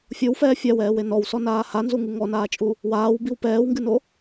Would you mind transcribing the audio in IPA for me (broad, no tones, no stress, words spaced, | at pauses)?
fʲowfɛː fʲawɛːwe nɔwsɔnaː hanzuŋɨ ŋɔnaːt͡ʃʼu | waːwbiw pɛːwŋɡɨno